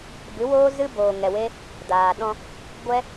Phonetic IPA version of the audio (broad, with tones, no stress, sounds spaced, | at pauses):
b ɨ˨˦ w oː˦ z ɨ˦ b oː˨ ŋ ɛ˨ w e˦ | d aː˨ ɗ ɔ̃˧ | ɡʷ ɛ˦